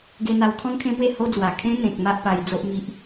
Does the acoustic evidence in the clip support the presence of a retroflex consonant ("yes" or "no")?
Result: no